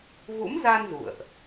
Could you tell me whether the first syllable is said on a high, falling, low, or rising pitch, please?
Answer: rising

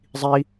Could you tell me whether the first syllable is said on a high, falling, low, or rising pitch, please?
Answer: high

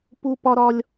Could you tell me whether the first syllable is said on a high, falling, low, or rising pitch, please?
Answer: high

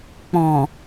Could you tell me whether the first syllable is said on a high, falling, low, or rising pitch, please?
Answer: low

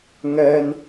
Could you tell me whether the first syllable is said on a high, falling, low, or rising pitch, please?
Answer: high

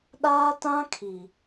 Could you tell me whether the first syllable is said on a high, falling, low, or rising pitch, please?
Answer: high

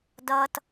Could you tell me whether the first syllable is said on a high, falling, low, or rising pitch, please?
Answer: high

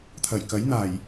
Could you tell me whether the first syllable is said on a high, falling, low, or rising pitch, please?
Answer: low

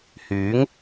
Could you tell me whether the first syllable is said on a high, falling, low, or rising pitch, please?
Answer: rising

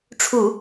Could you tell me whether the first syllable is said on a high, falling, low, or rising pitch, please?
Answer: low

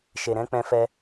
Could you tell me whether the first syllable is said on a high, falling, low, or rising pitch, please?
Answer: low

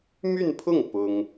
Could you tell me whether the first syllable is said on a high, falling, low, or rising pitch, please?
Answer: falling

